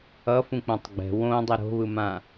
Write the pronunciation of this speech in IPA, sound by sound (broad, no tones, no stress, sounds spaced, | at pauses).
ʌ f ũ k͡p õ tˤ ɡ͡b ɛ̤ w õ dˤ ɛ ɾ o̤ β ɯ m ã